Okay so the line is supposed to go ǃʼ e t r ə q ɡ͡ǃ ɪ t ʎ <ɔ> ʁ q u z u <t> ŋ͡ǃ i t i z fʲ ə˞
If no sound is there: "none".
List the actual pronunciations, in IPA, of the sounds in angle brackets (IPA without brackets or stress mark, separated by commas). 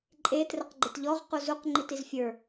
ɔ, q